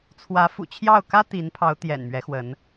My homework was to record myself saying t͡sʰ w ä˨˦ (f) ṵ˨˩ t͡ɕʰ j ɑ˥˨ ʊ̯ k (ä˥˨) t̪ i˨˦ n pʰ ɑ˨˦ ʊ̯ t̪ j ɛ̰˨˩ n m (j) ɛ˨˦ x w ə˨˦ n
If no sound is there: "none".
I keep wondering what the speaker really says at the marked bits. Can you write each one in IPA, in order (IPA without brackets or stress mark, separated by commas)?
f, ä˦, ɥ